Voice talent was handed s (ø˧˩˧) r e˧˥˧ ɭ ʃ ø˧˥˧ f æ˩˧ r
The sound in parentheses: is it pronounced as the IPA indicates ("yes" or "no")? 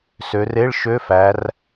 no